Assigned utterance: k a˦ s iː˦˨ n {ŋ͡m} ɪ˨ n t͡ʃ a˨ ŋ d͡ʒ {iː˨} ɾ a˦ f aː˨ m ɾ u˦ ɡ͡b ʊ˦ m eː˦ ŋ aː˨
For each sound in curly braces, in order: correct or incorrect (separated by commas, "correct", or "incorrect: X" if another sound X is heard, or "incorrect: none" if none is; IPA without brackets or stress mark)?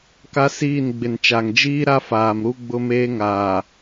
incorrect: ɡ͡b, incorrect: iː˦